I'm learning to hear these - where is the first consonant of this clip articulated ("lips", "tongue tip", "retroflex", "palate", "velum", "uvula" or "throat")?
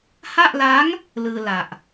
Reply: throat